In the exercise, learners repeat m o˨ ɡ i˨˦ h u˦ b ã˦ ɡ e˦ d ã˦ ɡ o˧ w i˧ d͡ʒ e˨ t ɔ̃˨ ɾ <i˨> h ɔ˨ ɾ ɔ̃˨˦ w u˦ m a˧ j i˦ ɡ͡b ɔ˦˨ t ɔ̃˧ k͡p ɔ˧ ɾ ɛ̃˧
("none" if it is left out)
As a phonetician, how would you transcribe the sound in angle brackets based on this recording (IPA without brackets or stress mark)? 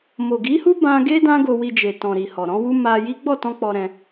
i˨